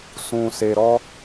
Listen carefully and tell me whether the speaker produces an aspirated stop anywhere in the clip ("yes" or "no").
no